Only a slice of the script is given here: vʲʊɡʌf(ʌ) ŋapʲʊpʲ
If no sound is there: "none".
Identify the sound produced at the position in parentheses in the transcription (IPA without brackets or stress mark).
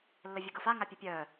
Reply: a